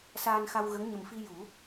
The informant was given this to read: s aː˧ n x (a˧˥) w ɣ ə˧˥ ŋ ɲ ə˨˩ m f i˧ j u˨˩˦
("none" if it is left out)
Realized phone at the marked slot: a˧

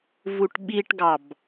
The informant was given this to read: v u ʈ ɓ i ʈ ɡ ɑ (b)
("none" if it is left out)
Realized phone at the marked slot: b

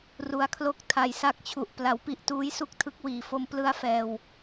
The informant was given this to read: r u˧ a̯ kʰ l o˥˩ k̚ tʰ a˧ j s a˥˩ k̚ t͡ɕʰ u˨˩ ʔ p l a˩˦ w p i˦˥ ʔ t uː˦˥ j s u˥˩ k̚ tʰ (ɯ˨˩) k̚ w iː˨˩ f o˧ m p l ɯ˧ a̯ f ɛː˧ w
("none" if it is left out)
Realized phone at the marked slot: ɯ˦˥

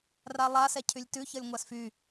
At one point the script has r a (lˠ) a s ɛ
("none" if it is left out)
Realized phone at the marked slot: lˠ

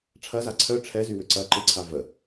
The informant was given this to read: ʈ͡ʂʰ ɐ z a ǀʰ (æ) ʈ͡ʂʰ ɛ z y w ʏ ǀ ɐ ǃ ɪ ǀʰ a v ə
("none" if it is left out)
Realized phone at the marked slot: œ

